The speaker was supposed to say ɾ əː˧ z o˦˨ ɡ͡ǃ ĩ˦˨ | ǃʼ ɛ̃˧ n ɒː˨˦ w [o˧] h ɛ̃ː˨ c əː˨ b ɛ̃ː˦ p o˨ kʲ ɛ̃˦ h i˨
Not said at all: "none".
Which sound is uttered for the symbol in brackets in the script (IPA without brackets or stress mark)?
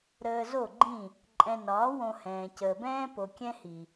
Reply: õ˧